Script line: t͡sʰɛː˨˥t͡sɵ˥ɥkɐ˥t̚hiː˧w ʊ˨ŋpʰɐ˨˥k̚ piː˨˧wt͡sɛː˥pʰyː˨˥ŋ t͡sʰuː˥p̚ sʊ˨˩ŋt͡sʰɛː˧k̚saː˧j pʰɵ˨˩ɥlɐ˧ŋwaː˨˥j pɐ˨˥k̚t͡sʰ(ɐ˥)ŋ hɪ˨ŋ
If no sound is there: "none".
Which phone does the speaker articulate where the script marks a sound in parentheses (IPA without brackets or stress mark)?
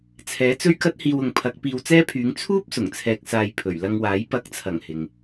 ɐ˨˩